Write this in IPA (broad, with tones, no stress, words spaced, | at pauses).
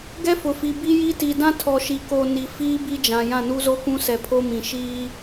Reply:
ɡɛ˦fʊ˨fi˨ bi˦ji˦ ti˨dã˦ tʰɔ˨ʃi˨ ko˨ ni˨fiː˦ bi˦d͡ʒã˨ jã˦˨nu˦zo˦kũ˦ sɛ˨pʰo˦mĩ˨ ʃiː˦